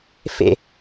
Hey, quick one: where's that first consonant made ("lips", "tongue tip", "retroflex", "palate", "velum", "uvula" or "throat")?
lips